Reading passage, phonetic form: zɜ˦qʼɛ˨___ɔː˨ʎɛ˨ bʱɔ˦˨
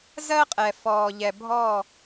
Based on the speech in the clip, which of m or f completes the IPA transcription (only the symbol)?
f